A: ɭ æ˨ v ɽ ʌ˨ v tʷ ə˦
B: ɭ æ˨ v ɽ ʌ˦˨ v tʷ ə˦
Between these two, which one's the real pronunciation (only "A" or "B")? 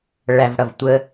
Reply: A